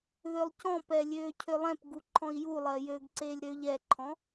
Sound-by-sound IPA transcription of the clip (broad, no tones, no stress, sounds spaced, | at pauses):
ð ø lˠ c ɔ̃ p ɛ lʲ øː cʰ ø lˠ ɛ̃ p ɡ u ǃʰ ɔ̃ i̯ j u lˠ ɜ j ø ɡ ǀ eː lʲ ɾ ø ʎ ɛ ǃʰ ɔ̃